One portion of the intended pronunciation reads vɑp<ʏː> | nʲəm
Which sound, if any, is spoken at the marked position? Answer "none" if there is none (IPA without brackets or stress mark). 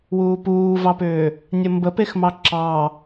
ʏː